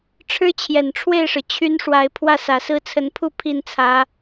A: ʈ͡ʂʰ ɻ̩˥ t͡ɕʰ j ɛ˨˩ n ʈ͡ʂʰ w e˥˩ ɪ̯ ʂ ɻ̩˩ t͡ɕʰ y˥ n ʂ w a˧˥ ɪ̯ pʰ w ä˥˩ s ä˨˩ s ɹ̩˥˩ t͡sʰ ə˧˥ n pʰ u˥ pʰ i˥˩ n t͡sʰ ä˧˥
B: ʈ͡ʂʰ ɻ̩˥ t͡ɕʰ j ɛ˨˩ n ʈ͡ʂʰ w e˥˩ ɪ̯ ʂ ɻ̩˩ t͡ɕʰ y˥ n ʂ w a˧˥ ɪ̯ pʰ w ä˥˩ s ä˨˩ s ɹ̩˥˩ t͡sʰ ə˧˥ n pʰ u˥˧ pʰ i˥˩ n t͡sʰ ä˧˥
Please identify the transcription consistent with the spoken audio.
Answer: B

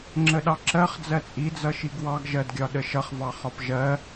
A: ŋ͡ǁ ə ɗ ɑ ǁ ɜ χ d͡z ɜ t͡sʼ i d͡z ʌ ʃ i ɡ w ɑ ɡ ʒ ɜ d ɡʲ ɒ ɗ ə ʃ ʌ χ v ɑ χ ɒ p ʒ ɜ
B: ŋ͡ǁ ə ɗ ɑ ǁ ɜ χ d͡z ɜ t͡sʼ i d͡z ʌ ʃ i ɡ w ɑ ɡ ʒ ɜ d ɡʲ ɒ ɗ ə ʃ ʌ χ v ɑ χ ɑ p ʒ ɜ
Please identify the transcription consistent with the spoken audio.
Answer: A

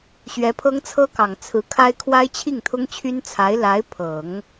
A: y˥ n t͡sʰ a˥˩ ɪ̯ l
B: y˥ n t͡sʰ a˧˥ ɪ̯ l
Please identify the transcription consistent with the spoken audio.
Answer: B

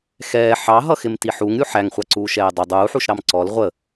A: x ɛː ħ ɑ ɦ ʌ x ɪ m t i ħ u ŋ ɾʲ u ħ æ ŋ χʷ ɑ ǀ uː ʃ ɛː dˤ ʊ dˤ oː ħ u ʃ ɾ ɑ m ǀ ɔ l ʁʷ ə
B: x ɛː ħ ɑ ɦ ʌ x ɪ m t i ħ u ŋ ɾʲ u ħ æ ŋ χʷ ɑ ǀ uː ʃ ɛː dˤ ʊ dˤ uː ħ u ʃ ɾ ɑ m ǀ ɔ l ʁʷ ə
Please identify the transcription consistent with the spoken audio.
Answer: B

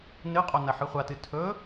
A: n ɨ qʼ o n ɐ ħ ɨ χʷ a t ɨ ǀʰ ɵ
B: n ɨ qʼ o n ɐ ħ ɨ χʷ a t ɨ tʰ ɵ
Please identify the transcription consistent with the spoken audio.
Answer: B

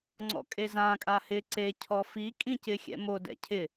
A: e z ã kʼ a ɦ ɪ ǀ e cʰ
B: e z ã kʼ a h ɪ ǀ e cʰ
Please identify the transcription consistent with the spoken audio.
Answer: B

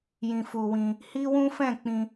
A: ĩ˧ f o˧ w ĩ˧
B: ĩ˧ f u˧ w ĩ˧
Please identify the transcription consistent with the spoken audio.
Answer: B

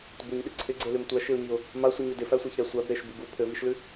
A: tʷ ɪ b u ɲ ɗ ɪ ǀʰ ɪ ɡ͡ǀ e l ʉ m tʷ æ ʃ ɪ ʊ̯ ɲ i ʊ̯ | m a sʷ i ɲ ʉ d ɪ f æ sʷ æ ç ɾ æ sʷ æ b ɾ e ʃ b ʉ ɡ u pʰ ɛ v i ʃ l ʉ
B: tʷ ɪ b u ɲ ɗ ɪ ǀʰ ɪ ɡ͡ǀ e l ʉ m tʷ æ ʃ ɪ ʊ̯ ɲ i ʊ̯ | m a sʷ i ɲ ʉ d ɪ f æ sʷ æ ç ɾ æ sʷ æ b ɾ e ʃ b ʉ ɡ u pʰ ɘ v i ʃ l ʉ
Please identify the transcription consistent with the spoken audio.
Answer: B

